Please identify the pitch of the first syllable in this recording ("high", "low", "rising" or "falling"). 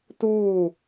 falling